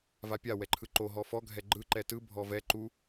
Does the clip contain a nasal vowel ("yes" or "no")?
no